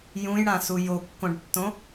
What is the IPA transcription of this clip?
j ũ j ɽ ã s u j o kː õ ɖ tː õ

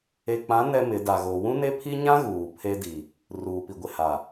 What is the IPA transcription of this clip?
e˨ k͡p ã˨˦ n ɛ˦ m ɪ˨˦ d a˨ ɣ o˨ w ũ˦ n e˦ pʰ i˦ ɲ ã˦ ɣ uː˨ pʰ e˦ d i˨ | r uː˨ p i˨ ɡʷ ɪ˨ h a˨

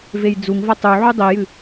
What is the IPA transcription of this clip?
v e j d͡z u ŋ v ɐ tˤ u ʕ ʉ dˤ i j ɨ

